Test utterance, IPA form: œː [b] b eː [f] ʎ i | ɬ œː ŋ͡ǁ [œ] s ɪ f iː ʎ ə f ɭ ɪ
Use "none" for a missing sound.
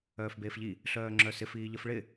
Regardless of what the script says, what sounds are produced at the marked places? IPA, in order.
f, f, œ

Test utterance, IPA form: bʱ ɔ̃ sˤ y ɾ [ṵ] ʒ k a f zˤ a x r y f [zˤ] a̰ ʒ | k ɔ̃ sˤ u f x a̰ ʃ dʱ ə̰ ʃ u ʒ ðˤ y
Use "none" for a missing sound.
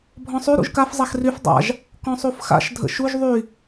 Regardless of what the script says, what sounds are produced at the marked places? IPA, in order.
ṵ, dˤ

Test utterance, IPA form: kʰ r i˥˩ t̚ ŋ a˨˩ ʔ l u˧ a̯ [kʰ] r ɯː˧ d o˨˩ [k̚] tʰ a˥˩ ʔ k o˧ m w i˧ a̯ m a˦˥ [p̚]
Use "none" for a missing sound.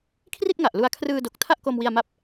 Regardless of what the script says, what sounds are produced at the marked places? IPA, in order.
kʰ, k̚, p̚

